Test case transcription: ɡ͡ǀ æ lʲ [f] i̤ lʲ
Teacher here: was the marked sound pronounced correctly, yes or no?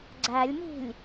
no